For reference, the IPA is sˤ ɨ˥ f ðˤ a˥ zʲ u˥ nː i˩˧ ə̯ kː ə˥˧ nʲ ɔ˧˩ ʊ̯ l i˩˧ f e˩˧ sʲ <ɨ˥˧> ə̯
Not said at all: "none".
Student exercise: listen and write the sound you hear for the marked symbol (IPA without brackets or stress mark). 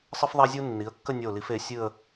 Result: ɨ˥˧